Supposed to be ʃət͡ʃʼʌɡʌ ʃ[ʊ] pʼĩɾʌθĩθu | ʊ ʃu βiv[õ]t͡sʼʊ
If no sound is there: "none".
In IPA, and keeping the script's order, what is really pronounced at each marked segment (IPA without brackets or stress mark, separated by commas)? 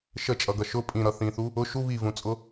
ʊ, ũ